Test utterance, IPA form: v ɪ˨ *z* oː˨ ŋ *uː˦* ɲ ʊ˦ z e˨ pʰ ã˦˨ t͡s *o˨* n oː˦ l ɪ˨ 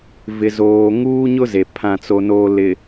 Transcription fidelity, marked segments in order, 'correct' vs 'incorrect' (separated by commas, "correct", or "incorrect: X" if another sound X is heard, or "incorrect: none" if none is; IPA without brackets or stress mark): correct, correct, incorrect: o˦